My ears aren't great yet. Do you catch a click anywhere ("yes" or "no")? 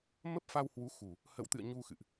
no